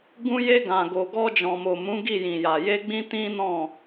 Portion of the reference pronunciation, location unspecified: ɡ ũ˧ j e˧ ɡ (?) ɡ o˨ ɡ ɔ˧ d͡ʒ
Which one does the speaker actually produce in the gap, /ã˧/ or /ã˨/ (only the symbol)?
ã˨